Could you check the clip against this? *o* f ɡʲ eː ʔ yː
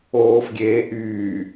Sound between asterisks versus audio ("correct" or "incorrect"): incorrect